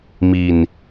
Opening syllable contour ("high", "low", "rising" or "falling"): low